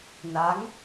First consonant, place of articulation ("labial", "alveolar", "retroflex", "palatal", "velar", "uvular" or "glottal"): alveolar